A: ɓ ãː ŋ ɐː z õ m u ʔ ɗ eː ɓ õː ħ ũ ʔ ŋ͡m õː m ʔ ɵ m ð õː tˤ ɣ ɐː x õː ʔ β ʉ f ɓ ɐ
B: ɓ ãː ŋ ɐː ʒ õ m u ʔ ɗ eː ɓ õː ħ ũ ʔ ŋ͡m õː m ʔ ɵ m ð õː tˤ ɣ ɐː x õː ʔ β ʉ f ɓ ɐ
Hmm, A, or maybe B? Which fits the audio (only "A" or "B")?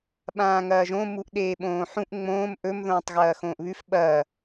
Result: B